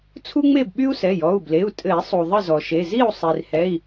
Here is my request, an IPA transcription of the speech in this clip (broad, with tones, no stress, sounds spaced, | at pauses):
t͡sʰ u˥ ŋ͡m e˥˨ b ɓ y˥ u̯ s ɛ˩˧˩ j ɔ˩˧˩ u̯ b l e˩˧˩ u̯ tʼ ɘ˨˩˦ i̯ sˤ u˩ ðˤ ɘ˥˨ z ɔ˩ ʃ e˩˧˩ z i˥˨ u̯ sˤ i˩ r h ɛ˩˧˩ i̯